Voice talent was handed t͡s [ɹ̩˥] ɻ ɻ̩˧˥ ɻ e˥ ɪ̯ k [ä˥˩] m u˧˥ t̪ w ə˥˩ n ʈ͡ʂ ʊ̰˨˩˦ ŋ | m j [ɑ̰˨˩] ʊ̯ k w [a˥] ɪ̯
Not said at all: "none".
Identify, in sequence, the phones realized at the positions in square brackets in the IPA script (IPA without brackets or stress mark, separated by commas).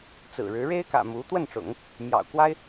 ɹ̩˨˩, ä̰˨˩, ɑ̰˨˩, a˥